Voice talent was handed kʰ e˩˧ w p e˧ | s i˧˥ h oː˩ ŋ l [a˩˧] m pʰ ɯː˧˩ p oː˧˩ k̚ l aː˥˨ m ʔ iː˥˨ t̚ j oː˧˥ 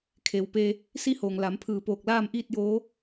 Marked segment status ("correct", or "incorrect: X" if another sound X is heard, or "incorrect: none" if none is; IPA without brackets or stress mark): correct